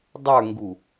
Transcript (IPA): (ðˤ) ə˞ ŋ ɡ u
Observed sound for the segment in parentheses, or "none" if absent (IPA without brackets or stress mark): dˤ